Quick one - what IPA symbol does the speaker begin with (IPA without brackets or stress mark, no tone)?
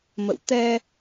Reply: m